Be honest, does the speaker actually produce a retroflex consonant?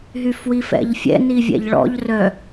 yes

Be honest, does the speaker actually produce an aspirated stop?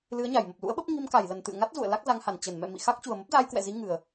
no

